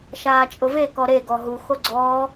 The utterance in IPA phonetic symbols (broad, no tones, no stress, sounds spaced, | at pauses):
ʃ aː t͡ʃʼ ʊ v e k ɔ ɾ e ɡ ɔ ɦ u x o ɡ͡ǀ ɔː